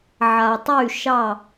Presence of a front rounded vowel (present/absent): present